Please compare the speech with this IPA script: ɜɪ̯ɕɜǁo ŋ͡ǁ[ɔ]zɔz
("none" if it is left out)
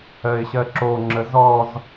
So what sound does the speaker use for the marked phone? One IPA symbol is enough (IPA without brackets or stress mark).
ə